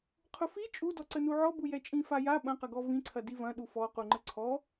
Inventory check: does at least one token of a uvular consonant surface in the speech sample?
yes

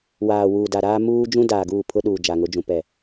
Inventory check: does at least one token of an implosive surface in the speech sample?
yes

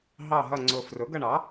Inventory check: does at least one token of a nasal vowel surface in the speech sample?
no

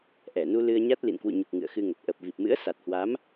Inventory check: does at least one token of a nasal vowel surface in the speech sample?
no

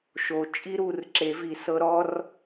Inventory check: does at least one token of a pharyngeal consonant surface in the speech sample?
no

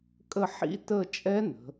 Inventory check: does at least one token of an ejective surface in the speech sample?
yes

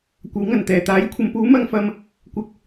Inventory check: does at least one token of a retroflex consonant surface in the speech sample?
no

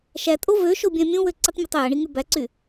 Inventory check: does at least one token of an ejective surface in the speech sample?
yes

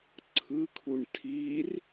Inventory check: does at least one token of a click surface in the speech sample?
yes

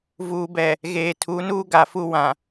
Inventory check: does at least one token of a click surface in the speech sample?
no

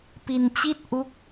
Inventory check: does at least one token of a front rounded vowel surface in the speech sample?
no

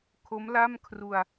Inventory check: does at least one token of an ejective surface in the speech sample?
no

